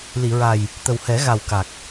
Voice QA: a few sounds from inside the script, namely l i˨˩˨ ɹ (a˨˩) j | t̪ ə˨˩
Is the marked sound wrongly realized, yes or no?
no